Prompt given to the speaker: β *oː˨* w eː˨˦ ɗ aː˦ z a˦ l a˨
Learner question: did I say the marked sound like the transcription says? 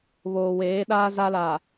yes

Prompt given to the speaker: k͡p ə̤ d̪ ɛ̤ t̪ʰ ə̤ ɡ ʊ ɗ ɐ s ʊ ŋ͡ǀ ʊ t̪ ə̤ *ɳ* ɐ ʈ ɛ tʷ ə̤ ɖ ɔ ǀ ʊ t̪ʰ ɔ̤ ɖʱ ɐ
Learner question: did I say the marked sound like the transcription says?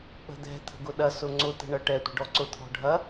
yes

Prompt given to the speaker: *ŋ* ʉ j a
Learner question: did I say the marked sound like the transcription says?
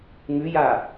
yes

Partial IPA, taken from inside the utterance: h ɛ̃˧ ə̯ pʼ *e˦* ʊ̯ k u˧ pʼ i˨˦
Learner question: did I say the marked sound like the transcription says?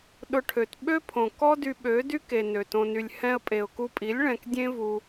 no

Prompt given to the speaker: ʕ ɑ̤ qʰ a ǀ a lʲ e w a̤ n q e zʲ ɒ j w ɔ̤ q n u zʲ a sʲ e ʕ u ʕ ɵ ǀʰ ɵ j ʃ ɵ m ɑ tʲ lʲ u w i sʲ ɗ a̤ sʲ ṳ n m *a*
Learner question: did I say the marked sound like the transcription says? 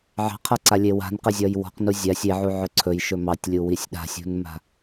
no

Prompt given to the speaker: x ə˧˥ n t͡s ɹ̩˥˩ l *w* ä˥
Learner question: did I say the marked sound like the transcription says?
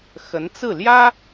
no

